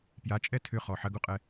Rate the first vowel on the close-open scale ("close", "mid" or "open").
open